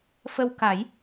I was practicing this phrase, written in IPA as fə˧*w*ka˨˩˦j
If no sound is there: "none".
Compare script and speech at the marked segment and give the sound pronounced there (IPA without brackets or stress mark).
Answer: w